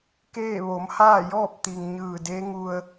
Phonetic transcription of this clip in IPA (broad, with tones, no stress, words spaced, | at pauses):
keː˥˨ ʋo˩˧mhaː˥˨jɔː˥˨p̚t̪i˩ŋ ɲɯː˧˩de˧˥ ŋu˧ə̯